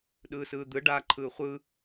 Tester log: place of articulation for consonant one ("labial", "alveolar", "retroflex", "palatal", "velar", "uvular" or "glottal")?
alveolar